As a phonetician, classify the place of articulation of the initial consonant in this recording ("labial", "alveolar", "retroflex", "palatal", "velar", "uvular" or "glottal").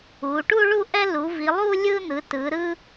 retroflex